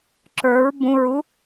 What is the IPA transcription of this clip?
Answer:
ǁ ə˞ ɹ b ũ ɹ u

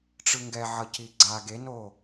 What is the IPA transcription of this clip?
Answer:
ʈ͡ʂ ɯ ŋ ɡ ɛ ʕ ʌ c i ɡ͡ǀ a ɡ e n o

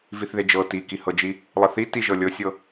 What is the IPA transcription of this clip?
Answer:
v i θ ð e d͡ʒ ɤ t i k i h ɤ d͡ʒ i | lˠ ə θ i t i ʒ ɤ lʲ ɤ sʲ ɤ

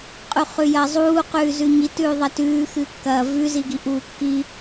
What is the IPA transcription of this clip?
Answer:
qʼ ʉ χ ʉ j ɐː zˤ uː q ʉː z ʉ ɲ i t ʉː ðˤ ɐ t ʉː x ɨ kː ɐː v ʉ z i ɡ i ʔ uː kː i

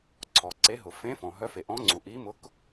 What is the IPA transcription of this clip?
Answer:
ǀʰ ɔ˩ ǀ e˨˥ ɦ ʊ˩ f ẽ˨˥ f ɔ̃˩ ɦ œ˨˥ f e˩ ʔ ɔ̃˨˥ ŋ͡ǀ u˩ ʔ i˨˥ m ʊ˨˥ k

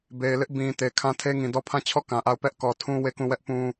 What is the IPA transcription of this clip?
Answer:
b e˨ ɪ̯ l ɪ˦ ʔ b ĩ˨ t e˨ kʰ ã˦ tʰ e˦ ŋ ĩ˨ d ɔ˦˨ pʰ ã˦˨ t͡ɕʰ ɔ˦˨ k ã˨ ʔ a˦˨ ʊ̯ p ɛ˦ ʔ k ɔ˨ tʰ ũ˦ w e˦˨ k ũ˦˨ w ɛ˦ ʔ p ũ˦

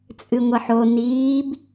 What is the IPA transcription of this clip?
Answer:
t͡sʼ ɨ ŋʷ ɐ ħ o n iː b

